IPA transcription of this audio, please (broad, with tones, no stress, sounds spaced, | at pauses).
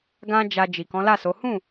ɡ ã˦ d͡ʒ a˧ d͡ʒ i˨ k ɔ̃˨˦ l a˦˨ s o˨˦ h ũ˦˨